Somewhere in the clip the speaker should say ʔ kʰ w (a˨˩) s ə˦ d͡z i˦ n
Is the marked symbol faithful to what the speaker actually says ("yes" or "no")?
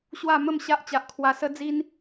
no